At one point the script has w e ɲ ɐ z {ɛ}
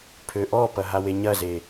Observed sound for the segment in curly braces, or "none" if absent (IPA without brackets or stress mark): e